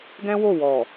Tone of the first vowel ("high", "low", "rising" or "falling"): high